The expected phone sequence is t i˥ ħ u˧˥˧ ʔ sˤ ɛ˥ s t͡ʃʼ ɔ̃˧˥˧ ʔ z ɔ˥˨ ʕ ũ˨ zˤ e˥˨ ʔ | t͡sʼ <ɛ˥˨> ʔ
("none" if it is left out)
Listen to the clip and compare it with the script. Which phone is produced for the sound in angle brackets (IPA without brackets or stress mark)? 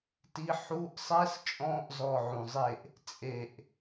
e˥˨